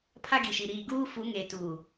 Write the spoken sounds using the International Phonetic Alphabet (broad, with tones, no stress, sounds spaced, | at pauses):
pʰ a˦ ɡ i˨ ʃ i˨ ɾ iː˨ ɡ uː˦ f u˨˦ ŋ e˨ t uː˨